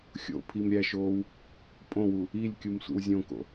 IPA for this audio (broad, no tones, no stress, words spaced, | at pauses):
xʲo̰ pʰimɾʲæʃoːw | pʼõwu | ilʲkʲum sʷḭwzʲõko̰